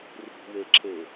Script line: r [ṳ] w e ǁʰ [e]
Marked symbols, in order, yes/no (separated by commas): yes, yes